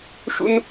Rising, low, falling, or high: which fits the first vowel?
high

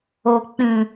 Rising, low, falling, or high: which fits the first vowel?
low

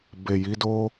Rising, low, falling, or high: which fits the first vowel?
low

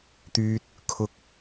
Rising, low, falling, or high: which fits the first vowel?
low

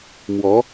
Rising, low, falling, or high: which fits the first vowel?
rising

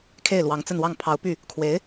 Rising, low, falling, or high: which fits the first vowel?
falling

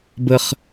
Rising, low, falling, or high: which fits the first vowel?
high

